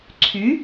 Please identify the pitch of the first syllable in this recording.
rising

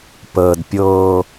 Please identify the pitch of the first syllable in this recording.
low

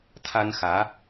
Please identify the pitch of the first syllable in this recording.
high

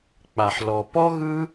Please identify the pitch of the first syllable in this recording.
low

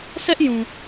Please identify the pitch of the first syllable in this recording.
high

